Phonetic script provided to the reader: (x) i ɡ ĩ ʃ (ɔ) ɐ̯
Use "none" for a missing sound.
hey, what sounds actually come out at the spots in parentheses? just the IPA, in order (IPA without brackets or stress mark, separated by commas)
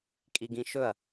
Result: kʼ, ɵ